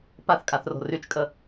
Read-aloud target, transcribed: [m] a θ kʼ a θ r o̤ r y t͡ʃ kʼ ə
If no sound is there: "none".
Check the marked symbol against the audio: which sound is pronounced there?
p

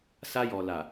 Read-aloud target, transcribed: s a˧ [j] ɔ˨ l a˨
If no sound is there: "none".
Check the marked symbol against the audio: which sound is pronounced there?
j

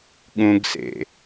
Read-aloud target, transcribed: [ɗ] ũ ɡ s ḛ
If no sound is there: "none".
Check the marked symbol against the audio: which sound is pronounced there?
ɠ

